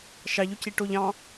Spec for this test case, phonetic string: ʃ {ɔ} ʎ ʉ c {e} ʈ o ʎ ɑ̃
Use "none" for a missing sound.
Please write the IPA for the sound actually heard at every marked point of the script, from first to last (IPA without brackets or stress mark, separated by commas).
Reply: ɑ, i